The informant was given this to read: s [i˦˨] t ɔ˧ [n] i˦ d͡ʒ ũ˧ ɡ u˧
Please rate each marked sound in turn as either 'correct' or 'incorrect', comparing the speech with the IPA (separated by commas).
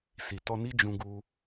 incorrect, correct